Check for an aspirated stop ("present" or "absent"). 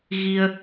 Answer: absent